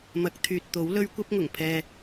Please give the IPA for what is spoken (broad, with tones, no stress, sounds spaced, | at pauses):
m ɐ˨˥ k̚ t̪ʰ yː˨ t̚ t̪ o˨˥ w l ɵ˧ ɥ kʷ ɐ˧ p̚ ŋ ʊ˨˩ ŋ pʰ ɛː˨